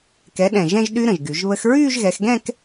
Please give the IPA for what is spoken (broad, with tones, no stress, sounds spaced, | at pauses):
k ɛ˩˥ ɗ ɛ̃˨˩ ʒ ɛ̃˥˧ ʒ ɗ y˦˥ ɾ ə̃˨˩ ʒ ɡ y˧˩˧ ʒ β ə˦˥ x ɹ yː˥˧ ʒ ɣ ɛ˩˧ x ɡ ɛ̃˥˧ k